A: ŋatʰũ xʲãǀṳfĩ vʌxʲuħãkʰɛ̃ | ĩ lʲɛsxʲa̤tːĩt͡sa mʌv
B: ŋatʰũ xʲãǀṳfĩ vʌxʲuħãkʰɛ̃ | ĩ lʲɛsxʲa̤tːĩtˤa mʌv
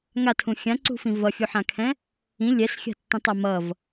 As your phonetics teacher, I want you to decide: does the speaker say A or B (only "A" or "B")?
B